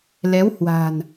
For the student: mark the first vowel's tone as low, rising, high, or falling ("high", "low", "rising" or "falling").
rising